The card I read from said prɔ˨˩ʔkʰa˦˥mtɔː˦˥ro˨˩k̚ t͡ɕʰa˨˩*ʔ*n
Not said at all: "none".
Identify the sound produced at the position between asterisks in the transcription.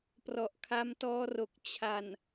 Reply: none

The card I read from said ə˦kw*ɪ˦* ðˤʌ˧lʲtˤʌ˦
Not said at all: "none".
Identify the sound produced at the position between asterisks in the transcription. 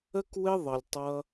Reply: ɪ˦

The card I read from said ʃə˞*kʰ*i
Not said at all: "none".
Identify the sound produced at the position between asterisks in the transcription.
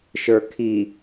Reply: kʰ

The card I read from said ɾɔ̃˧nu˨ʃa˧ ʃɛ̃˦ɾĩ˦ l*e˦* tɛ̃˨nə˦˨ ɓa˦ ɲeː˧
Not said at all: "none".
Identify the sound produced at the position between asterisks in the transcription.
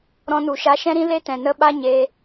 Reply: e˦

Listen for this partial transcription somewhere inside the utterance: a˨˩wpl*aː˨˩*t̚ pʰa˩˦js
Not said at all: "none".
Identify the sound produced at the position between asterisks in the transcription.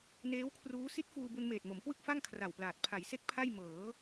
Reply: aː˨˩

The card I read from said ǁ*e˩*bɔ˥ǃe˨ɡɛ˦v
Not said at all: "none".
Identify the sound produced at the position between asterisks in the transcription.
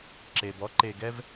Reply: e˩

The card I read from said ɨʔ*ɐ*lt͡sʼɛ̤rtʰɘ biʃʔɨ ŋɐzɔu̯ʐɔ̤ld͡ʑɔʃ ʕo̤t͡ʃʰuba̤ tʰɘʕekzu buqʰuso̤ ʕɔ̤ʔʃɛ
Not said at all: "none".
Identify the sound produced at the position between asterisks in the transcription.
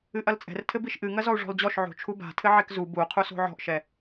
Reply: ɐ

